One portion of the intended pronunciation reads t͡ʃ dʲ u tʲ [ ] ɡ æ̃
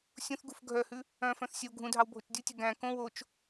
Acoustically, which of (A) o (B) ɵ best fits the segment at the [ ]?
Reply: B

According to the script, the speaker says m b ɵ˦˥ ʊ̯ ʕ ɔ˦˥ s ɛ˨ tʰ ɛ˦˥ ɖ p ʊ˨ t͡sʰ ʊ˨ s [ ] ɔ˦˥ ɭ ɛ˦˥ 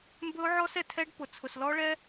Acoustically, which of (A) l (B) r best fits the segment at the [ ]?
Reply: A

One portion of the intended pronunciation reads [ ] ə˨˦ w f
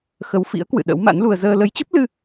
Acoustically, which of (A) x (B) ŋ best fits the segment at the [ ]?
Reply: A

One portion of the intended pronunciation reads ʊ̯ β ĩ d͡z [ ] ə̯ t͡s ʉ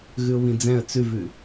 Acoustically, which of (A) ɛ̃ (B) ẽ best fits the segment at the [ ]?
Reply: A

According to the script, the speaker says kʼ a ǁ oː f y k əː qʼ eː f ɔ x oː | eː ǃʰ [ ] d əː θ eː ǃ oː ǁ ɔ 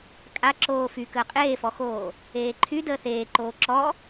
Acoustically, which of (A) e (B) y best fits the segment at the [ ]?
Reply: B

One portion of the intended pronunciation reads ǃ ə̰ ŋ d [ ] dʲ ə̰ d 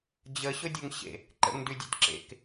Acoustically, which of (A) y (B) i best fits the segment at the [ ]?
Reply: A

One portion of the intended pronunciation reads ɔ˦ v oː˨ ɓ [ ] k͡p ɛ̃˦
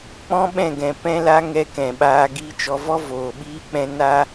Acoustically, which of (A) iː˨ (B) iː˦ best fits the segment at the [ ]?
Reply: B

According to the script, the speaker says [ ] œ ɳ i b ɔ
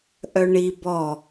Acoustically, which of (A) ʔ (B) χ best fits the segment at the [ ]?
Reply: A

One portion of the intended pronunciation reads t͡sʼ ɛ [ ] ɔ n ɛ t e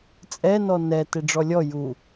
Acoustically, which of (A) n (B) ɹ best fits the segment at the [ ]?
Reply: A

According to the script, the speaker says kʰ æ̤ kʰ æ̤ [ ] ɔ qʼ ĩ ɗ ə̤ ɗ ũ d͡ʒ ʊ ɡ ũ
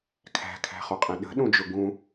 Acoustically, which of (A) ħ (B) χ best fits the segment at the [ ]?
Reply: B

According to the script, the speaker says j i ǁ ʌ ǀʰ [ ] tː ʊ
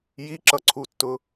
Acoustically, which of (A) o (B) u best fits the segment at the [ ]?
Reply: B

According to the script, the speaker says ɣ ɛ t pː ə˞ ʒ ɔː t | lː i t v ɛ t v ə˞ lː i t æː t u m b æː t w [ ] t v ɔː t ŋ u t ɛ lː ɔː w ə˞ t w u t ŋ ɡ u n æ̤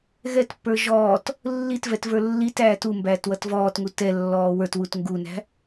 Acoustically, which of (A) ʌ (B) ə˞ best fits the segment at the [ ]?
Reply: A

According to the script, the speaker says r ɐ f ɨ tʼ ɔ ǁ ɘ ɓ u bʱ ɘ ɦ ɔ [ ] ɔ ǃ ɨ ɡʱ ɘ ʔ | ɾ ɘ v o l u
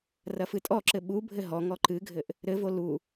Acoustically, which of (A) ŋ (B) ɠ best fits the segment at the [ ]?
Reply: A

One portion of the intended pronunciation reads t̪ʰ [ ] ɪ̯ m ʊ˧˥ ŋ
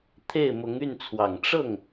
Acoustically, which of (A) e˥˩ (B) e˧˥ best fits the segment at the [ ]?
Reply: A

